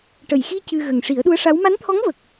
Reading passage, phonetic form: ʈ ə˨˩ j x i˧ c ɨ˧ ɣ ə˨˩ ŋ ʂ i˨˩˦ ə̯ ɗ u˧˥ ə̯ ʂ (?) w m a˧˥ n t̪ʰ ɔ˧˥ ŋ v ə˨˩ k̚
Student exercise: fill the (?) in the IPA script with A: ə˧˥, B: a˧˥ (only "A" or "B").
B